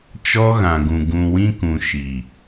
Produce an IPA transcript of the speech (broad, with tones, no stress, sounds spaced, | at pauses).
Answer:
t͡ʃ ɔ˦ ɣ ã˨ ɡ ũ˨ ɡ ũ˨ w ĩ˦ k ũ˨ ʃ i˨